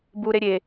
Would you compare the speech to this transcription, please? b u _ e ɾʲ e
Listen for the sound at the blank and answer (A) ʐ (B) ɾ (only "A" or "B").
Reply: B